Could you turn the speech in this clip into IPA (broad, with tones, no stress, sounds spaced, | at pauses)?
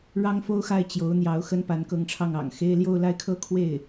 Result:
ɻ ɑ˥ ŋ f o˥ ʊ̯ x a˥˩ ɪ̯ t͡ɕ j o˧˥ ʊ̯ n̪ j ɑ˧˥ ʊ̯ x ə˥ n p a˧˥ n k ɤ˧˥ ŋ ʈ͡ʂʰ ɑ˥˩ ŋ ɑ̰˨˩ ŋ x e˥ ɪ̯ l j o˥˧ ʊ̯ l a˥˩ ɪ̯ kʰ ɤ˥ kʰ w e˥˩ ɪ̯